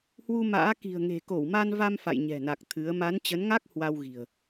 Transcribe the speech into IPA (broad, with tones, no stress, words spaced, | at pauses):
hwu˧ma̰ː˧˥ ki̤˨˩ə̯ŋe̤˨˩ko˧˩w ma˧nva˧m fa̰˧˨jɲɛ̤˨˩na˨˩k̚ t̪ʰɨ˨˦ə̯ ma˨˦nt͡ɕə˨˦nŋa˦˥k̚ hwa˧wɣi̤˨˩ə̯